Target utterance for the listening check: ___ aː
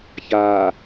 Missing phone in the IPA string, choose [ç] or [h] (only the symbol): ç